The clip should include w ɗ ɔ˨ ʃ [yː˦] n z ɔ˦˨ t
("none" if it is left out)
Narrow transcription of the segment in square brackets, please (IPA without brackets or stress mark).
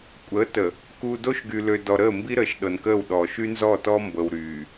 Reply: y˦